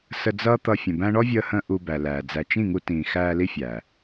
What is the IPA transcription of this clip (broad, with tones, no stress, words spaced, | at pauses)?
sə˧d͡zʌː˦t̪ʌ˧ fʲə̃˨ bæ̃˧ɳɔ˦vʲəː˧hə̃ː˧ ʔu˧bæ˨læː˨ d͡zæ˨t͡ʃĩ˦˨ŋu˧ tĩː˨xæː˧ li˦fʲæ˨